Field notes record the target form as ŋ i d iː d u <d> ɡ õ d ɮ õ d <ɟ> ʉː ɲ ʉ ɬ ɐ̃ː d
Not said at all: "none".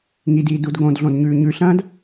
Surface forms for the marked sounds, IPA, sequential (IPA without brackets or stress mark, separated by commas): d, ɲ